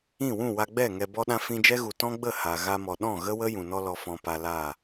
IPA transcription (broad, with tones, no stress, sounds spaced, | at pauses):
ĩ˦˨ w ũ˦˨ w a˧ ɡ͡b ɛ˦˨ ŋ ɛ˨ b ɔ˧ ɗ ã˧ f ĩ˧ d͡ʒ ɛ˦ ɣ u˨ t ɔ̃˦ ɡ͡b ə˦˨ h a˨ ɣ a˧ m ɔ˨ ɗ ɔ̃˦˨ ɣ ə˦ w ə˦ j ũ˨ n ɔ˦ l ɔ˧ f ɔ̃˧ p a˧ l a˦˨